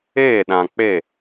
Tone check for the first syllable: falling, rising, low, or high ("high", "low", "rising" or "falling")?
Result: falling